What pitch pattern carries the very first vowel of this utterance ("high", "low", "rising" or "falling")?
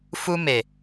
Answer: high